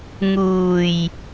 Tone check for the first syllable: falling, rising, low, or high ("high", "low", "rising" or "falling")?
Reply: low